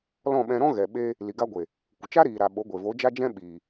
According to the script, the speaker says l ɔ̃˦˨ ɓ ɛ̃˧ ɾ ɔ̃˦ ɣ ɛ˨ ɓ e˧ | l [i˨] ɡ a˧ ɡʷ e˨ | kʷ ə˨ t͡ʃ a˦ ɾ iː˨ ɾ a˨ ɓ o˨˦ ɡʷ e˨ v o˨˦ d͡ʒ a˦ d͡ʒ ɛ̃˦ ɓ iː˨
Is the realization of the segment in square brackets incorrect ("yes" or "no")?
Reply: no